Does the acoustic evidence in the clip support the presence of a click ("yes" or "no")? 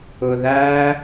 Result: no